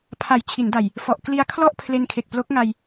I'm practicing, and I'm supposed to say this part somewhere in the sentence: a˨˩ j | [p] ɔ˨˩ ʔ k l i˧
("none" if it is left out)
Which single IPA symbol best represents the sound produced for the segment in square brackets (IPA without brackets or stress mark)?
f